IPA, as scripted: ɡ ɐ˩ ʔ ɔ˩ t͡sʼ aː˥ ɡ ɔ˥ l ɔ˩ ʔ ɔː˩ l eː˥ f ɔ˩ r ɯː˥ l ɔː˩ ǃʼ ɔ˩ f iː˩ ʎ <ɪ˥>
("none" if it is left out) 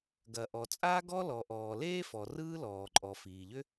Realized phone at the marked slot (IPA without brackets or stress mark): ʏ˥